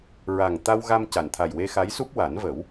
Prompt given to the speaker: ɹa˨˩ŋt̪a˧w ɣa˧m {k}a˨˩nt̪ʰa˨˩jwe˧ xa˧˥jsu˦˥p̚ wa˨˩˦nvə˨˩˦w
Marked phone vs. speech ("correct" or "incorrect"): incorrect